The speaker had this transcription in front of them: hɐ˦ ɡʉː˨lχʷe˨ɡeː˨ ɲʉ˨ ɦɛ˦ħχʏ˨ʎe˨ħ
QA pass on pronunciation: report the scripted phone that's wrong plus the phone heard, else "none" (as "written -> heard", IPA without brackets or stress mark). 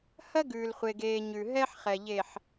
ʏ˨ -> ɛ˨